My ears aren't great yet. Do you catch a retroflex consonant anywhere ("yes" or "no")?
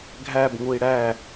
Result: yes